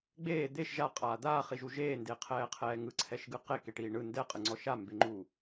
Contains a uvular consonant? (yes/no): yes